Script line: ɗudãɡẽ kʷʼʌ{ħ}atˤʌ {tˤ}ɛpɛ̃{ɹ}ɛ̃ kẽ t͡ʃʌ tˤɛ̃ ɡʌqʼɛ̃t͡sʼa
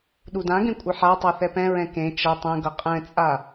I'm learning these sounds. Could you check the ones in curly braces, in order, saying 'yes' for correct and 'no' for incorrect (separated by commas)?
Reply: yes, no, yes